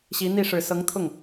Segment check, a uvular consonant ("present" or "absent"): absent